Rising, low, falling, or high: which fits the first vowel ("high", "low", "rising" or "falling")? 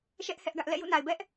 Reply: high